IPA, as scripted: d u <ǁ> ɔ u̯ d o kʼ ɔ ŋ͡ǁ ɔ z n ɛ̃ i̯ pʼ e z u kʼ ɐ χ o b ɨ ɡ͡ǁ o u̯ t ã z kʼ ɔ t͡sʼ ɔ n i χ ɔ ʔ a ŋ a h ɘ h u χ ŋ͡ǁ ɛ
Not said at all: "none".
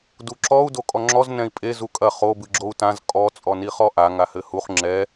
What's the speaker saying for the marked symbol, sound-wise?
ǁ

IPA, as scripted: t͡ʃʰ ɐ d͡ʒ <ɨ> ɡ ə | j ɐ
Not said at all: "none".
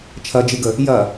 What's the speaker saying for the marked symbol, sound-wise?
ɨ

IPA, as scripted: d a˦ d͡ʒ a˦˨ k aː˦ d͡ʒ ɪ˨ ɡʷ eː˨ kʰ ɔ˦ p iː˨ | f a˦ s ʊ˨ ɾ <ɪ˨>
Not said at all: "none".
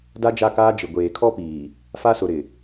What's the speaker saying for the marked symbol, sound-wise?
ɪ˨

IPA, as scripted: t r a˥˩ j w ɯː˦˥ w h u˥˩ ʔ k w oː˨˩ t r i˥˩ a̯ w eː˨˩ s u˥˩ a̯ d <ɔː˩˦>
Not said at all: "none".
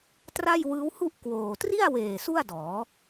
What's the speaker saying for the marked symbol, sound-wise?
ɔː˩˦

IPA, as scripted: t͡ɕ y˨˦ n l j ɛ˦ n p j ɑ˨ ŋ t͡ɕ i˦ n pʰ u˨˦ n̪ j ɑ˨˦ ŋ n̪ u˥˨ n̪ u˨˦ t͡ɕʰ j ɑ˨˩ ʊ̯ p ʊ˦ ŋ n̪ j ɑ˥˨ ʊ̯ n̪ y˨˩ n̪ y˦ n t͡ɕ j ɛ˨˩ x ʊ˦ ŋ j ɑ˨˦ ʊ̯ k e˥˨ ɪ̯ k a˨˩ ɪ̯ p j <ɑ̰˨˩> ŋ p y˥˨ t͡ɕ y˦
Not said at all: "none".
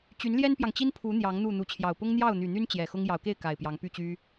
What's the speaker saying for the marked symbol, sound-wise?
ɑ˨˦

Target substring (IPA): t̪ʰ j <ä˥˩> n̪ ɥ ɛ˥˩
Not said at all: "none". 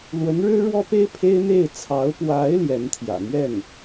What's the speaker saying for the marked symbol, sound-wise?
ä̰˨˩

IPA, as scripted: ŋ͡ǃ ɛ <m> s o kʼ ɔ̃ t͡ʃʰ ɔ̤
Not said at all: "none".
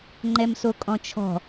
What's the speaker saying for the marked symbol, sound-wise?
m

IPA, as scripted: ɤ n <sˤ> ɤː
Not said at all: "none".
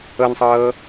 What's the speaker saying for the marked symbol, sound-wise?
sˤ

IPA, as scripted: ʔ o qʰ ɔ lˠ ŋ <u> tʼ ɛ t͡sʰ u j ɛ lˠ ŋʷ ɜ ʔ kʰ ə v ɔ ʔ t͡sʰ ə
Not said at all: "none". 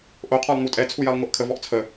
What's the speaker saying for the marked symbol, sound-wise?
u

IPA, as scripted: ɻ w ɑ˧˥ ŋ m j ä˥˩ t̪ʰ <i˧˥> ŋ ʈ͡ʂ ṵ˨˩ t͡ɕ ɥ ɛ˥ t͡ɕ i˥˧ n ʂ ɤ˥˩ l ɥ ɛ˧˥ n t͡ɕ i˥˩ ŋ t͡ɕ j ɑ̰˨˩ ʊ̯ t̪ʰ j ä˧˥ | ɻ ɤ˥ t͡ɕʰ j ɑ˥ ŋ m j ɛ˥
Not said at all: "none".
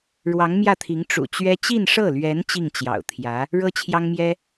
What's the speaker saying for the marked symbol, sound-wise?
i˧˥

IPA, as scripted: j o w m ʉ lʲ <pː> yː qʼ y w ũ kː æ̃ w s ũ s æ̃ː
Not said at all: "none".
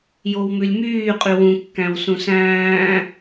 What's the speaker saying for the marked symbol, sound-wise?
m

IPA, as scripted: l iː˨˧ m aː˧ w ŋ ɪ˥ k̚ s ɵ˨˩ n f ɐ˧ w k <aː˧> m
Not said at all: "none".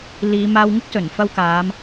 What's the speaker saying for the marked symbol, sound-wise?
aː˨˧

